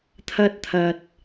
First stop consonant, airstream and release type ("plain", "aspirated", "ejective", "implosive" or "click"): aspirated